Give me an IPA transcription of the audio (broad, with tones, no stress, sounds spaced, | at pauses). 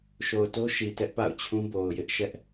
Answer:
ʃ o˨ ʊ̯ t o˦ ʃ i˨ t ɛ˦ ʔ p a̰˦˨ ʊ̯ t͡ɕʰ ũ˦ b o˨ ʊ̯ j ɪ˦ ʔ ʃ ɛ˦ ʔ